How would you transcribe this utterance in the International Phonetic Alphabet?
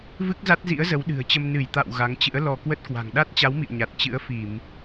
v ɨ˦˥ k̚ z a˦˥ t̚ z ḭ˧˥ ə̯ z ə˨˦ w ɗ ɨ̤˨˩ ə̯ t͡ɕ ə˧ m n ɨ˧˩ j t̪ a̰˧˨ w ɣ a˨˦ ŋ t͡ɕ ɨ̰˧˥ ə̯ l ɔ˧ k w ə˦˥ t̚ k w a̤˨˩ ŋ ɗ a˦˥ t̚ t͡ɕ a˨˦ w m ḭ˧˨ ə̯ ɲ a˨˩ t̚ t͡ɕ ɨ̰˧˥ ə̯ f i˧˩˨ m

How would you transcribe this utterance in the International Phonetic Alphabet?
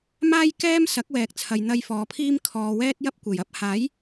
m aː˥ j k ɛː˥ m s ɐ˨˥ k̚ w ɛː˨ k̚ t͡sʰ ɐ˨ j n̪ ɐ˧ j f ɔː˨˧ pʰ iː˥ m kʰ ɔː˨ w ɛː˥ t̚ j ɐ˥ p̚ kʷ e˨˩ j ɐ˥ p̚ h aː˨˥ j

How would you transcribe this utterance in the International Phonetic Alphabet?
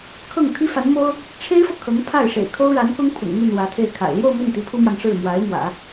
kʰ ɤ˥˩ ŋ t̪ʰ i˥ f a˧˥ n m o˥ ʊ̯ | ʈ͡ʂʰ e˥ ɪ̯ f ɤ˨ kʰ ɤ˧˥ ŋ pʰ a˥˩ ɪ̯ ʂ ḛ˨˩ ɪ̯ kʰ o˥ ʊ̯ ɻ a˧˥ n k ʊ˥ ŋ pʰ ʊ̰˨˩ ŋ m y˥˩ n w ä˧˥ t̪ʰ e˥˩ ɪ̯ kʰ a̰˨˩ ɪ̯ l j o˥˧ ʊ̯ m i˥˩ n t̪ i˧˥ pʰ u˥ m j ɑ˨ ŋ ʂ ɻ̩˥˩ m w a˧˥ ɪ̯ m w ä̰˨˩˦

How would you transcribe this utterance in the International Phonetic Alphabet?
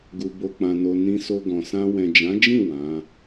ɡ u˨ b o˨ k͡p ã˨ n o˨ n ĩ˧ s o˧ ɡ ɔ̃˨ s ã˧ w ɛ̃˨ d͡ʒ ã˨˦ d͡ʒ ĩ˦˨ w ã˨˦

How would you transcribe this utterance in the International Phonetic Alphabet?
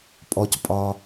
pʼ ɔ˩ c pʼ ɒ˩

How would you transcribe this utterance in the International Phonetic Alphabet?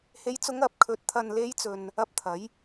h e˨˥ j t͡s ʊ˨˧ ŋ ɐ˨ p̚ kʰ ɵ˨ t̚ t̪ʰ ɐ˨ n l e˨˧ j t͡s ɵ˨ n | ɐ˧ p̚ t̪ʰ ɐ˨˥ j

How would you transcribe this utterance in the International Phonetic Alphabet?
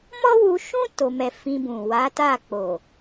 m ɔ˦ w u˧ ʃ ũ˦ t o˧ m ɛ˧ f ĩ˧ b ũ˨ w a˨˦ t a˦˨ k͡p o˨

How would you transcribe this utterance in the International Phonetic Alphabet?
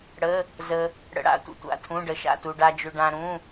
ɽ ə˩˧˩ | z ə˩ | ɽ ə̰˩ ɽ a̰˩˧˩ tʷ ə̰˩ tʷ a̰˩˧˩ tʰ ũ˩˧˩ ɖ ə˩ ʃ a̰˩˧˩ t u˩ ɖ a˩ d͡ʒ ʏ˩ ɖ ã˩ ɾ ũ˩˧˩

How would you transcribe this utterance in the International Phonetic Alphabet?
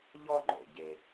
ʎ ɔ˥ ŋ͡ǃ o̰˨ ɟ e˨

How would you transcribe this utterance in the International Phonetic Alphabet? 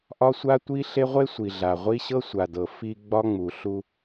ʔ ɒ˦ sʷ a˦ tʷ i˦ ɬ e˦ ʁʷ e˦ sʷ i˨ ɮ a˨ ʁʷ i˦ ɕ ɤ˦ sʷ a˨ d ɤ˨ f i˨ ɡ͡b ɒ˦ ŋ͡m u˨ ɬ u˦

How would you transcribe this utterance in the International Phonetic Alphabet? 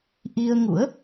ʔ i˧ ə̯ ŋ ṵ˧˥ ə̯

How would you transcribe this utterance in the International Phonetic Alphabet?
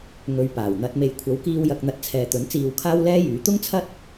ŋ ɵ˨˧ ɥ p aː˨˩ w n̪ ɐ˧ t̚ m e˨ j kʷʰ ɐ˨˥ w k iː˧ w j ɐ˨ k̚ n̪ ɐ˨˥ t̚ t͡sʰ ɛː˨ t̪ ɵ˨˥ n t͡s iː˧ w kʰ aː˥ w l ɛː˥ j yː˨˧ t̪ ʊ˥ ŋ t͡sʰ ɐ˥ t̚

